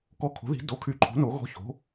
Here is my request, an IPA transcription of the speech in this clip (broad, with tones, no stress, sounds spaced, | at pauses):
k ɔ˧˥˧ kʰ o̤˩˥ ð i̤˩˥ d o˩˥ kʰ y˩˥ ǃʰ o̤˩˥ n o˩˥ ɣ ɔ̤˧˥˧ ç o̤˩˥